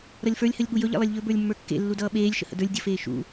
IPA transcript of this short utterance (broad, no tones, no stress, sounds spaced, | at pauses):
ɾ ʌ lʲ f ə˞ lʲ h ə lʲ ɠ u j ɵ ʎ ḛ lˠ e lʲ ʎ ɵ b ə˞ lʲ mː ə˞ kː ḛ lː u d ʌː ɓ eː lʲ ʃ ə̰ h ə̰ d ə˞ lʲ dʲ ə f eː ʃ ṵ